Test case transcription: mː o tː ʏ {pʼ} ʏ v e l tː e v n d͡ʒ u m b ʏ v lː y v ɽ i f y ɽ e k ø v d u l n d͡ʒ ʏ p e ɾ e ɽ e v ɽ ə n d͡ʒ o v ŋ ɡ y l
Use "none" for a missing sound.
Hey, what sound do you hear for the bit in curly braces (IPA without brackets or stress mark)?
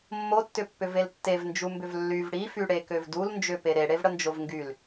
pː